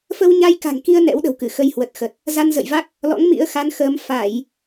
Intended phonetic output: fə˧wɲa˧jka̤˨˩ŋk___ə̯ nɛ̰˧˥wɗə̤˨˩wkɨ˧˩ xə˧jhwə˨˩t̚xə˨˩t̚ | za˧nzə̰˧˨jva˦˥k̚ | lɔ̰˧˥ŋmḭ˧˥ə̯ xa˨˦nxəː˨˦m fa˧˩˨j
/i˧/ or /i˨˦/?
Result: i˧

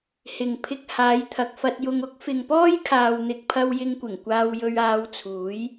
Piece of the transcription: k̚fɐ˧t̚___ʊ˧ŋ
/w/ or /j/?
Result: j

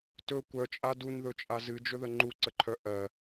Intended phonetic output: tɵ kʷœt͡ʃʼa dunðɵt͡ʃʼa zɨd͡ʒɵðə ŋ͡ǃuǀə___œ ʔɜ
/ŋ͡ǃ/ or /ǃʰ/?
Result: ǃʰ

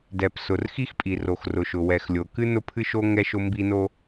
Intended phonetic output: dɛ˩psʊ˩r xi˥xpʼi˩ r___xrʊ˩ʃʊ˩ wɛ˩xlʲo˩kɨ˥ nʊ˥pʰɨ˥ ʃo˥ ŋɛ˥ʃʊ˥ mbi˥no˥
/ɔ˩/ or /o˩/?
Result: o˩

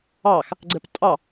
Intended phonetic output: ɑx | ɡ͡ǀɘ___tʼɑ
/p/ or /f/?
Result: p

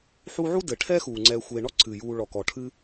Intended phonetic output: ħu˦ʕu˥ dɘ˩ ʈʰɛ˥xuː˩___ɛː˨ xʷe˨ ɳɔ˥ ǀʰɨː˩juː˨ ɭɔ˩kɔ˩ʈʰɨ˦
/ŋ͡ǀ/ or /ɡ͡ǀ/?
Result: ŋ͡ǀ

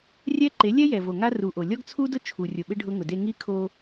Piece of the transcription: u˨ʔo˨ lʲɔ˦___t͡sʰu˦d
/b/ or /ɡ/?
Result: ɡ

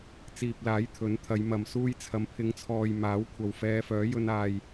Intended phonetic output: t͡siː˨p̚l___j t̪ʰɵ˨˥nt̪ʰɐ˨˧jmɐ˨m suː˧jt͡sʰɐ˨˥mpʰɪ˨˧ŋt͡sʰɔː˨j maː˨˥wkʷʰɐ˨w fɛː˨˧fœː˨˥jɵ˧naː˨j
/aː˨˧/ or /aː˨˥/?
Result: aː˨˥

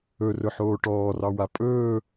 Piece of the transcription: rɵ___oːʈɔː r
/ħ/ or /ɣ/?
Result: ħ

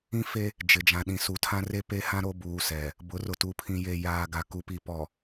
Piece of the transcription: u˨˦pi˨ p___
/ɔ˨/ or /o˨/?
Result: ɔ˨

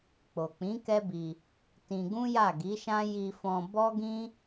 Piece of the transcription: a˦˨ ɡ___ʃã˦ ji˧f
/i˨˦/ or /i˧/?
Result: i˨˦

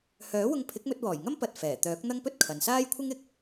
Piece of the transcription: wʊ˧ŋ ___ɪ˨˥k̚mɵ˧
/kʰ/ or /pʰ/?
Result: pʰ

